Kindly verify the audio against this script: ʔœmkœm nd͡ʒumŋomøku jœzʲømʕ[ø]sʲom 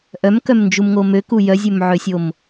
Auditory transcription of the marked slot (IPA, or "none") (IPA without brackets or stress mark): ø